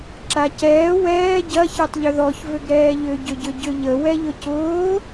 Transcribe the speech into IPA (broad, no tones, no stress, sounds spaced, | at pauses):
ǁ a c ɛː w ɛː ɟ ɐ ç ɛ tˤ ʎ ʏ ð ɔ ç v ʏ ɡ ɾ ɛː ʎ ʏ ɟ ʏ ɟ ʏ ɟ ʏ ʎ ə w ɛ ʎ ʊ c ʊː